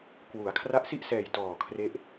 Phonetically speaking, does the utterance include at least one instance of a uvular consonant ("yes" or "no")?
no